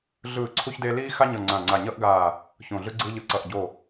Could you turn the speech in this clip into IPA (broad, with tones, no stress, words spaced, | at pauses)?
ɮɯː˧˩ ǀʰu˥çde˥ liː˥ xa˥ɲʌ˧˩ ŋ͡ǀã˧˩ŋ͡ǀa˧˩ɲʌ˥ʔɡaː˧˩ | çõ˧˩ɮɯ˥ɡ͡ǀɯː˥ ʎɯ˧˩ ǀʌ˧˩ʔɟo˧˩